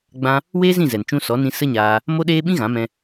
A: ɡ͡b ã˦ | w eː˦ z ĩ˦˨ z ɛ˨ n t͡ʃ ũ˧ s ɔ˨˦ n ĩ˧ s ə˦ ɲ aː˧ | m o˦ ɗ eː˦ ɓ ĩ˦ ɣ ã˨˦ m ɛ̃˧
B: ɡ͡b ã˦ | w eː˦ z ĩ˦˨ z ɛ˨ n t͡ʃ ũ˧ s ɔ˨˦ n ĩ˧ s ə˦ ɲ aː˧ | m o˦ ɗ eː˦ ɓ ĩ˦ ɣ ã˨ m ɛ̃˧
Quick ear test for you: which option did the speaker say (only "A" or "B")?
A